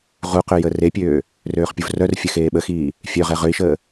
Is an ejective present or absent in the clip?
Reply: absent